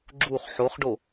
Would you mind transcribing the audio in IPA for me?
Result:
ɡ͡ǁuχ ħoχɖo

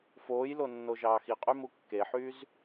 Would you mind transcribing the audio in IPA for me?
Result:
foːjlonːo ʒɑːxiqʼy mukːeħyːz

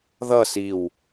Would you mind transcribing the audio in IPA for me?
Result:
ðʌ siw

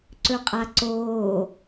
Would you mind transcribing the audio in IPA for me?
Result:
ǀɵqʼaǀoː

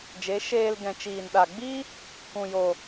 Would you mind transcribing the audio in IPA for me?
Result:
d͡ʒe˨˦ ʃeː˧l ɡɛ̃˨t͡ʃiː˨nɗa˨ɡ͡bi˦ | kũ˨jo˨

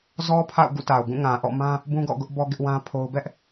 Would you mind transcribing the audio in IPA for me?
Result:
zɔ˦pʰa̰˦˨ʊ̯ ɡṵ˦˨ta˨ʊ̯ɡũ˦˨ ŋã˨ʔɔ̰˦˨mã˦ | bũ˦ɡɔ̰˦˨ɡʊ˦ʔbɔ˦ ɡɪ˦ʔwã˦pʰo˦ʊ̯ bɛ˦ʔ

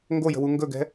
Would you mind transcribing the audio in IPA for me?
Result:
ŋɡojə̤wu ŋɡɵɡɛ̤

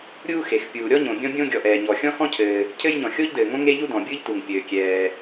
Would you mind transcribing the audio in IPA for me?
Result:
ɾʲuː˥xe˩x pʲuː˩ɾʲɔ˥ɲõ˩ bʲɔ̃˥bʲõ˥ ɡʲɔ˩ʔɛː˩ɲɔ˩ xʲɔ̃˥xɔ̃˥cʰɘː˩ | cʰɘ˥jɲɔ̃˩ xʲo˥ʎdɘː˩ŋõ˥ ŋe˥ʎu˥ dɔ̃˩bʲɯ˥ʎtu˩ŋ pʲɘː˩kʲɛː˩

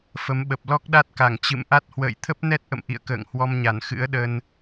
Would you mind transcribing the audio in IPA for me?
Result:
fə˨˦mɓə˨˩p̚ lɔ˦˥k̚ɗa˦˥t̚ka˧˩ŋ t͡ɕɨ̰˧˨mʔa˦˥t̚ hwə̰ː˧˨jt̪ʰə˦˥p̚nɛ˦˥t̚ʔə̰˧˨m ʔḭ˧˨ə̯kə̰ː˧˨ŋhwɔ˧mɲa˧˩n xɨ̰˧˥ə̯ɗə˧n

